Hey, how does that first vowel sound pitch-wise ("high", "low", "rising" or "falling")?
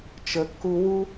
low